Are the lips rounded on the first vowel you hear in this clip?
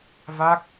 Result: no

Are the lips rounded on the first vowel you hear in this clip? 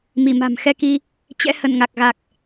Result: no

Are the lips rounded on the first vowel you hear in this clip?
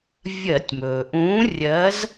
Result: no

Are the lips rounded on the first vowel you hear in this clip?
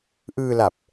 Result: no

